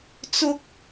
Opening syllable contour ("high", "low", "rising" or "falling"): high